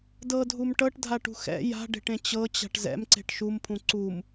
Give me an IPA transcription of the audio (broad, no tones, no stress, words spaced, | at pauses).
dɤdʱum ʈɤʈdʱaʈṳ xɛ̰ ja̤ɖe̤ʈẽ t͡ɕɤt͡ɕa̤ʈ zɛ̰mǀe̤ʈ ʃumpʰũ ǀum